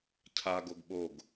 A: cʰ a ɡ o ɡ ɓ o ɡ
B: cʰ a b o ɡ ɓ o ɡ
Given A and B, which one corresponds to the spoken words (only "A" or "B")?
A